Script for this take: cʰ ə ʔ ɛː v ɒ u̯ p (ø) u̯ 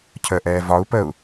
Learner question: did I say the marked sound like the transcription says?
no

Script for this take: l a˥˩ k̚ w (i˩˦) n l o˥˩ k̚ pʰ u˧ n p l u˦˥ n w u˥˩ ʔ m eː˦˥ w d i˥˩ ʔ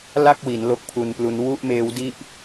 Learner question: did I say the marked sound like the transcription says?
yes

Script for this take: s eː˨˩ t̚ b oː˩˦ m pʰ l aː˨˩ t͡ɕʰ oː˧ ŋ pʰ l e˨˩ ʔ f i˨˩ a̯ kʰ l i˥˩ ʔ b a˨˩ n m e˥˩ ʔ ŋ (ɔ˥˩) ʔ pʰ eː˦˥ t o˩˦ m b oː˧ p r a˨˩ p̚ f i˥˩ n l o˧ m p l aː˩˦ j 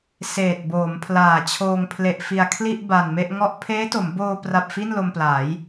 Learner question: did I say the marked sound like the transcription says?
yes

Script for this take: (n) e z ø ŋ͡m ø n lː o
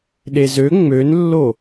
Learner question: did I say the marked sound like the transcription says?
no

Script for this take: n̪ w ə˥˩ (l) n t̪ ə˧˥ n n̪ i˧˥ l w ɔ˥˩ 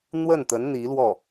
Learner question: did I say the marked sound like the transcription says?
no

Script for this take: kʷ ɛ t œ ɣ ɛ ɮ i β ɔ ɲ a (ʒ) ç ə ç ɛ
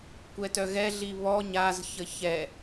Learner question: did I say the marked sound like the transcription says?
no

